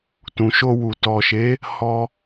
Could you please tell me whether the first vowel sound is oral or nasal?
nasal